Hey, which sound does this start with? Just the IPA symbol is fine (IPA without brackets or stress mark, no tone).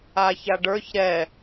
a